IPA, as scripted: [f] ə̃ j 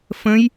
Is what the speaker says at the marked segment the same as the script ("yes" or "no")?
yes